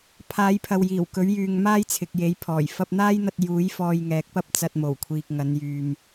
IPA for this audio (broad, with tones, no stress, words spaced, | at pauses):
pʰaː˨˧jpʰɐ˨w jiː˨˩wkɵ˨˥ɥjyː˨ŋ maː˥jt͡sʰɪ˨k̚je˨˥j pʰɔː˨˩j fɐ˧p̚n̪aː˥jn̪ɐ˧t̚ juː˨˥j fɔː˧jŋɛː˨˥k̚pɐ˥p̚ t͡sɐ˧t̚mo˨˩wkʷʰiː˨k̚ ŋɐ˨˧njyː˨m